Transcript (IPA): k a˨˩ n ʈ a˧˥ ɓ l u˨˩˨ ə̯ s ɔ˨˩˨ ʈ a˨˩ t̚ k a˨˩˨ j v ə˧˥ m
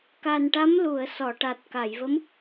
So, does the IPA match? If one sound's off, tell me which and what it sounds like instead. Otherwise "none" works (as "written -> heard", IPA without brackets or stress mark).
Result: ɓ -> m